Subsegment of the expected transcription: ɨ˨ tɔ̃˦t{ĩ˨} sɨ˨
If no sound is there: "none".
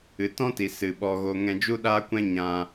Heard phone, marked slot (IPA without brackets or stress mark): i˨